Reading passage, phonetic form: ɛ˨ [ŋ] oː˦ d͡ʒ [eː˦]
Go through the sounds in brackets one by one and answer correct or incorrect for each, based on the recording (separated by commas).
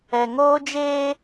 correct, correct